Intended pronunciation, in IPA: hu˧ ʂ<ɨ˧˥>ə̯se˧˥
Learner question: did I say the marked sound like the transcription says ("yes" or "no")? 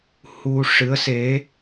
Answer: yes